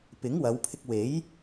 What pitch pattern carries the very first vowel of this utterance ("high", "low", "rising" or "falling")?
rising